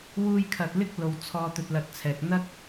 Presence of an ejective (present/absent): absent